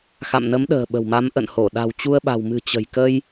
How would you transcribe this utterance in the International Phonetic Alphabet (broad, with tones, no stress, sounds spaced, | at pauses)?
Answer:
x a̰˧˨ m n ə˨˦ m ɗ ə̤ː˨˩ ɓ ə̤˨˩ w m a˨˦ m ʔ ə̰˧˨ n h o˧˩ ɗ a̤˨˩ w t͡ɕ u˧ ə̯ ɓ a̤˨˩ w m ɨ̤˨˩ t͡ɕ ə̤˨˩ j k ə˧ j